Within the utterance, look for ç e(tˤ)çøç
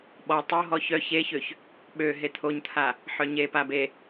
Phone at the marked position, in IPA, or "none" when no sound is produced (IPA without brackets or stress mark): none